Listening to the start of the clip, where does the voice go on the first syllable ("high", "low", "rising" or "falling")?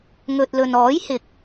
low